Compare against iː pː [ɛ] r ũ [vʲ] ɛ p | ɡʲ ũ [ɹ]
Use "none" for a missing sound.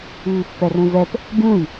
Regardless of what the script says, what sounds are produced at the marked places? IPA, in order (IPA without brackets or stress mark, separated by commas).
ɛ, v, j